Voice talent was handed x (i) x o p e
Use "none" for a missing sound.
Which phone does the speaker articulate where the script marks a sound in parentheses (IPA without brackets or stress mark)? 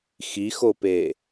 i